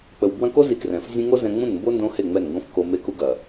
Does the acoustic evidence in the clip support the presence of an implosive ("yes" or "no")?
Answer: no